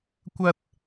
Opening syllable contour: high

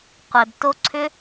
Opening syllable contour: low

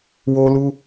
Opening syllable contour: high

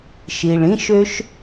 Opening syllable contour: low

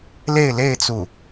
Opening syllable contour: falling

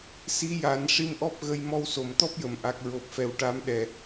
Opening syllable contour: rising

